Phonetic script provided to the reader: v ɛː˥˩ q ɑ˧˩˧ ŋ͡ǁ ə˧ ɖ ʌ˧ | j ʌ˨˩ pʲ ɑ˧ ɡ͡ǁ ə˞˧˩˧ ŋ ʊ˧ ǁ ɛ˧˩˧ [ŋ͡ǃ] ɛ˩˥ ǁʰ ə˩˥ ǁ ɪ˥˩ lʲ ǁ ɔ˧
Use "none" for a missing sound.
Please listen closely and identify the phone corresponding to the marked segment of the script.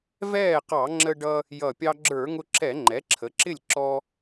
ŋ͡ǃ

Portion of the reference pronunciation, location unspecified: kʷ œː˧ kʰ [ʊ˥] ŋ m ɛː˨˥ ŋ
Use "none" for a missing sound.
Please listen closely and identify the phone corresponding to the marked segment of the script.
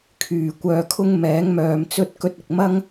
ʊ˥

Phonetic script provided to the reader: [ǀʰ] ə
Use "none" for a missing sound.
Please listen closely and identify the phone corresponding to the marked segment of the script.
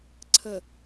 ǀʰ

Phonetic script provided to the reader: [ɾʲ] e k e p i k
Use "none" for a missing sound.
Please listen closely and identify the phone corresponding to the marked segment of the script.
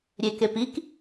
ɾʲ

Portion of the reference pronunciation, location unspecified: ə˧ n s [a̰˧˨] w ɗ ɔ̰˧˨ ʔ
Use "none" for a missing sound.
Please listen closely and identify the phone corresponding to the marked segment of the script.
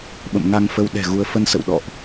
ə̰˧˨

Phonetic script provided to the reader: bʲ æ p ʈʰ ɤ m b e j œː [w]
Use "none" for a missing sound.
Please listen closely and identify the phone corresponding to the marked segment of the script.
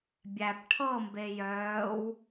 w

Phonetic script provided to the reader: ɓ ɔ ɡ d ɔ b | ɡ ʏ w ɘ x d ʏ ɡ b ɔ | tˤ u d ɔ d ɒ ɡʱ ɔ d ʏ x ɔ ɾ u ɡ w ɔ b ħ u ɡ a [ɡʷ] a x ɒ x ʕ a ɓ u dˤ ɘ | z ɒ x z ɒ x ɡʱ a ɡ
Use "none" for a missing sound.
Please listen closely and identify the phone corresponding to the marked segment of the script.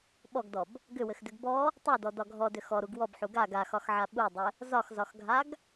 ɡ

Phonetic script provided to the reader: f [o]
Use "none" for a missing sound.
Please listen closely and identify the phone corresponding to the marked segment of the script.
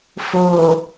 oː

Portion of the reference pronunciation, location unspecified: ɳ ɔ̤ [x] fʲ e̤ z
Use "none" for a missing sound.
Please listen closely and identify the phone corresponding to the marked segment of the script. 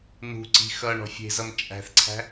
none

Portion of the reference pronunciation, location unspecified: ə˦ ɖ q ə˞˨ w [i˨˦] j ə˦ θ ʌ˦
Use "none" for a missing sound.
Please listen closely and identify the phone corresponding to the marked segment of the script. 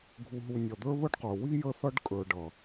i˦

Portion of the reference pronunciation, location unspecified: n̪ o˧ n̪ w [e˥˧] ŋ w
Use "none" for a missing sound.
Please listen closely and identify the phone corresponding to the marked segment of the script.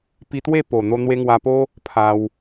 e˧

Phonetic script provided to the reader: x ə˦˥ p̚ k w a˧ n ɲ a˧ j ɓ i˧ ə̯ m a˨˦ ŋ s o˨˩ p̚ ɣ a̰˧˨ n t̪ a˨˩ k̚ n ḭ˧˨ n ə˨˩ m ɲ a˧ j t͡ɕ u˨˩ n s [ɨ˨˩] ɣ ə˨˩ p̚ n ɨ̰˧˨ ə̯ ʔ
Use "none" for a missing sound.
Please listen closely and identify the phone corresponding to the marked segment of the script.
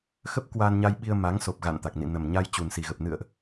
i˨˩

